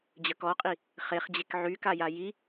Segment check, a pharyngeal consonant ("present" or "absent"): present